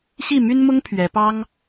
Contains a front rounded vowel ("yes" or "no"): yes